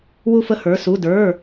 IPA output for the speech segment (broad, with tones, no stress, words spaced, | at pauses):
wu˦˨fə˦˨hə˞˩˧˩ su˩˧˩də˞˩˧˩